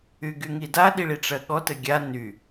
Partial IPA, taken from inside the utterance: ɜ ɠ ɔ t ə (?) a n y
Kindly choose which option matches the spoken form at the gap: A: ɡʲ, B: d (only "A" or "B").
A